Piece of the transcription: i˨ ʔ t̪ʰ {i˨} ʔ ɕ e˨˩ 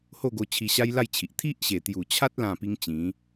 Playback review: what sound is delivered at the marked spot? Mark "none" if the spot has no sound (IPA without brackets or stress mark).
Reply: i˦